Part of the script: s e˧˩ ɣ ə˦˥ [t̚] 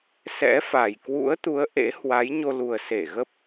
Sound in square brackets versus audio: incorrect: p̚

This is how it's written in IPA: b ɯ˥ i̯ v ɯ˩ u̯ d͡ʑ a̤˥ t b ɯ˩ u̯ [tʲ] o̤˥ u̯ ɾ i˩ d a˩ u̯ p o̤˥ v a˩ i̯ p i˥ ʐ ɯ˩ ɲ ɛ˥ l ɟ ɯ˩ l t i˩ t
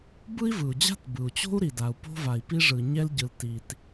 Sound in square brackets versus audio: incorrect: t͡ɕ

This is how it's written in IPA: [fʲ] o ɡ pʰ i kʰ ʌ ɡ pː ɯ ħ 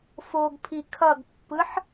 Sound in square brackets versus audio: incorrect: f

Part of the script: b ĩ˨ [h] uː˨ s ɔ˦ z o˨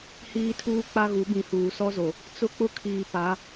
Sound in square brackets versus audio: correct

